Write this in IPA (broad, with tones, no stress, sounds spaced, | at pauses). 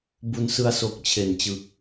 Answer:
b u˧ n s ɯ˧ a̯ s o˨˩ k̚ t͡ɕʰ e˨˩ n t͡ɕ ɯ˨˩ k̚